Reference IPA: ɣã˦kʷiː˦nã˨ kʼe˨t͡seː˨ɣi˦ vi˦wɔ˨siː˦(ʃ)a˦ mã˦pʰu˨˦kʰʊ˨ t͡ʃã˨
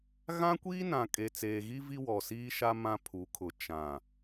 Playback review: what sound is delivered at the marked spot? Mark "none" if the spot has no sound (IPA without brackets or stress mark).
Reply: ʃ